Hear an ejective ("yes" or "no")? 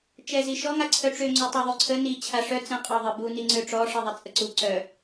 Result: yes